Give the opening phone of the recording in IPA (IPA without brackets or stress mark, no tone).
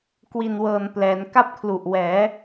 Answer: k